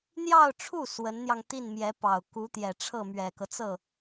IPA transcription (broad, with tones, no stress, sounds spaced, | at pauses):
n̪ j ɑ˥˧ ʊ̯ ʈ͡ʂʰ u˥˩ s w ə˧˥ n n̪ j ɑ˧ ŋ t̪ i˥˩ n m j ɛ˧˥ p ɑ˨˩ ʊ̯ k u˧˥ t̪ j ɛ˨˩ ʈ͡ʂʰ ɤ˥˩ m ɥ ɛ˨˩ k ɤ˦ t͡s ɤ˥˩